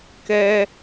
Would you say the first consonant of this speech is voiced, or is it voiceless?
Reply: voiceless